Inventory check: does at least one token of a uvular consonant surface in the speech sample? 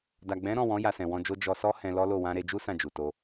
no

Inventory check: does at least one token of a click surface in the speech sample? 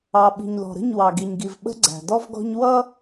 yes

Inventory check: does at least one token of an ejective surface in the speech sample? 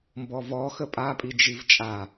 yes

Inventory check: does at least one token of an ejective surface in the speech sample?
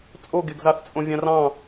yes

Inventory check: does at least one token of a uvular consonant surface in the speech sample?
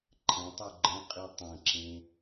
yes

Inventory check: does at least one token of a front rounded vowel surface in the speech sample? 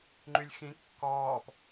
yes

